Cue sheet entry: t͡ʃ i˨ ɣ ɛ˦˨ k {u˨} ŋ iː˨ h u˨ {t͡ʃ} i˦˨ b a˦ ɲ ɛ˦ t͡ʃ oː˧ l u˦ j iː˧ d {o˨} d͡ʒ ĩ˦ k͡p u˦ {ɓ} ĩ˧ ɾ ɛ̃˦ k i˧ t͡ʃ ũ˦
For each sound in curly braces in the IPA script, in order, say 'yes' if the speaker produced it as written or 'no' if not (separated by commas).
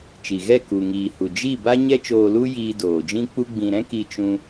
yes, no, no, no